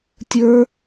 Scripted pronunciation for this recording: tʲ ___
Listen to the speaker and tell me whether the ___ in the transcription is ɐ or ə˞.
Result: ə˞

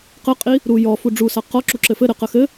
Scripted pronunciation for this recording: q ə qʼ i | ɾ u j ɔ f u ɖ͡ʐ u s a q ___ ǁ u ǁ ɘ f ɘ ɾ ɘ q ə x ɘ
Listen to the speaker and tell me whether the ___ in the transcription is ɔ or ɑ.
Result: ɔ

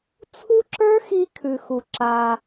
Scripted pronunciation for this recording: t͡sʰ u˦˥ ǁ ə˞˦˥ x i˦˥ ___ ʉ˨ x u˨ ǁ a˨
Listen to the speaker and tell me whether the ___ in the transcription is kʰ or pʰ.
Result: kʰ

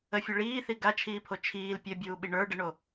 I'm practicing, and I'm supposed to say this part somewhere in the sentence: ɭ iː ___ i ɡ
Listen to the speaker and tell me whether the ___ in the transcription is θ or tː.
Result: θ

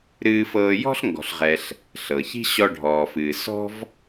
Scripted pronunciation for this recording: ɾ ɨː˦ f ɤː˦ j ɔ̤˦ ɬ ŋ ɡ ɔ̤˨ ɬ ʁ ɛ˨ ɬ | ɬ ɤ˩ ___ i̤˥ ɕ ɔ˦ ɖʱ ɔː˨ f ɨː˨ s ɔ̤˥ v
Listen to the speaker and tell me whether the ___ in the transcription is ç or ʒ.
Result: ç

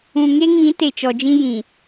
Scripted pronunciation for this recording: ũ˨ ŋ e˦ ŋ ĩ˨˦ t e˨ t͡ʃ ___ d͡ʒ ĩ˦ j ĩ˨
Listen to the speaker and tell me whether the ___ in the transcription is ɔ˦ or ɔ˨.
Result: ɔ˨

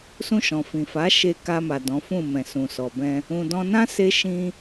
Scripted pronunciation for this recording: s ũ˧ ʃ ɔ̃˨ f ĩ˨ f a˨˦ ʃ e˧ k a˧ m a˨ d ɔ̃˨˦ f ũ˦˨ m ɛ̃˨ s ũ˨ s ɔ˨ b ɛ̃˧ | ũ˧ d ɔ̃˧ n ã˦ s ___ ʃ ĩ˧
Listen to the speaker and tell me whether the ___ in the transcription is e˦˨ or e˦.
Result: e˦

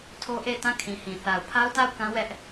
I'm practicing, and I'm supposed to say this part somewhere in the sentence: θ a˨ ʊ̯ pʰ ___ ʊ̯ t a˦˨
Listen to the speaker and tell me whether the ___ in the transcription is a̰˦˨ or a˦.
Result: a˦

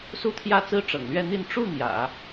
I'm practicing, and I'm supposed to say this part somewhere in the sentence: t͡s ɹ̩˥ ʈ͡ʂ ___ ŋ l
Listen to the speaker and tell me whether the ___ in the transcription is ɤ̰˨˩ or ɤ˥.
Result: ɤ̰˨˩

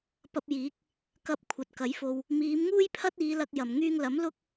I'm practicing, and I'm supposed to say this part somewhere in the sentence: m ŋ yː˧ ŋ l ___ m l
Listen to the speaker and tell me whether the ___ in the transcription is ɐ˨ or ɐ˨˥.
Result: ɐ˨˥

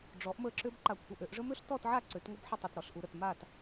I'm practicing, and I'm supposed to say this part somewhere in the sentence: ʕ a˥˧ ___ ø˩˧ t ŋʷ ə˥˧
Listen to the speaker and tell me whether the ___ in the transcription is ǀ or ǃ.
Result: ǀ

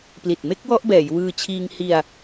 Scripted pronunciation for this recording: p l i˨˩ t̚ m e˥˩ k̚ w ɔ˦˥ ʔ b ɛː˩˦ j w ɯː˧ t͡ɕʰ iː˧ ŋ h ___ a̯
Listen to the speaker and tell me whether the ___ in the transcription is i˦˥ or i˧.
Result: i˧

